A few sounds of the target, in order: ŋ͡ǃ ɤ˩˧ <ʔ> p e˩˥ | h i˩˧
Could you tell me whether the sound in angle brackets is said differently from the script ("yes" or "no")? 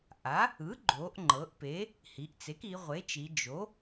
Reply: no